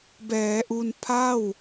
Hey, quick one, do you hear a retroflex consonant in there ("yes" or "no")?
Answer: no